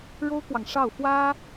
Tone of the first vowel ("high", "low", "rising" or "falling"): high